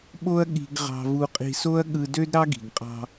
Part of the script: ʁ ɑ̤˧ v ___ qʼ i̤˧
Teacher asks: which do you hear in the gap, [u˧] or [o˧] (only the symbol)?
u˧